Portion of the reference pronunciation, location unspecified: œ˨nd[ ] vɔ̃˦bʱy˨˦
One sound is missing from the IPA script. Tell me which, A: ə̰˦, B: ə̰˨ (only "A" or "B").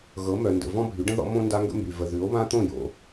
B